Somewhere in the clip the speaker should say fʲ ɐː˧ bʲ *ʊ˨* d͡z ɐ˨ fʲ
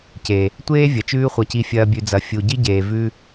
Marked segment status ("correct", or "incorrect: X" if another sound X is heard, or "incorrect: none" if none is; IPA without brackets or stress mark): incorrect: ʉ˨